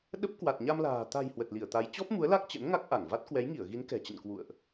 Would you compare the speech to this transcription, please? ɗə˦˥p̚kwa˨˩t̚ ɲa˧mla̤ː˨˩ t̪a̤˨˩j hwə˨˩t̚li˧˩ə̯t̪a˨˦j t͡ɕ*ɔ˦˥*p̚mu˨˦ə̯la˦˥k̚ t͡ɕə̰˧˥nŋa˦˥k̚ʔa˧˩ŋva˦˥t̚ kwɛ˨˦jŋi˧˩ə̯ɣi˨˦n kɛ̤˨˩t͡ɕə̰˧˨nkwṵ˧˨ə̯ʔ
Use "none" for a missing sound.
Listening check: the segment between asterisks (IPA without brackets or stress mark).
ɔ˦˥